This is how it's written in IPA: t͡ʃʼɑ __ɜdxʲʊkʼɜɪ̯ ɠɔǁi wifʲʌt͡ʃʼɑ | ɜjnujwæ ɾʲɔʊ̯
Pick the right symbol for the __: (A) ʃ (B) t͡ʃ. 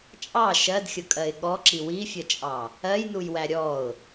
A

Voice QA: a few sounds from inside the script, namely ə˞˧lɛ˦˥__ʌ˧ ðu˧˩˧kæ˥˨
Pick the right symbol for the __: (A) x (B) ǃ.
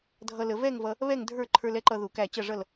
B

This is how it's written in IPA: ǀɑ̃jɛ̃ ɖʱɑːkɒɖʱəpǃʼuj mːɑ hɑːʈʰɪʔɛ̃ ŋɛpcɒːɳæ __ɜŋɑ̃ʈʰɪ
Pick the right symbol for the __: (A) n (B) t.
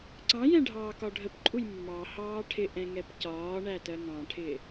B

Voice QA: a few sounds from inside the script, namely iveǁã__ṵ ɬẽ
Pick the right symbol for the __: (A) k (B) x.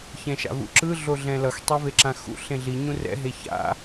B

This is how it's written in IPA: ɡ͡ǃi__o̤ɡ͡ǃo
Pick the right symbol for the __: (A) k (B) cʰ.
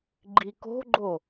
A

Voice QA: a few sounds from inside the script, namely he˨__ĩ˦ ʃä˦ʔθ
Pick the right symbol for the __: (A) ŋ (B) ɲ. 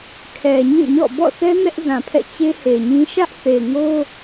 B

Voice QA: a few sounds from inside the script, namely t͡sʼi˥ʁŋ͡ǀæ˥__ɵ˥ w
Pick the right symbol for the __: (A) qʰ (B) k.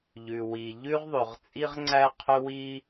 A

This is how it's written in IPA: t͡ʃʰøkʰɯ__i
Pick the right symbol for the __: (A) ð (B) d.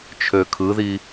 A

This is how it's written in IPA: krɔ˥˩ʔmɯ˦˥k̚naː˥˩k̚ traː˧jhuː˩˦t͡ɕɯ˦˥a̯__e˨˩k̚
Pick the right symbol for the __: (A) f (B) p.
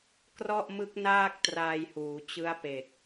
B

